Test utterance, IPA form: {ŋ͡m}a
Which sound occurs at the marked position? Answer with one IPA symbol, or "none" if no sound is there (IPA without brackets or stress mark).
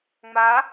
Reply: ŋ͡m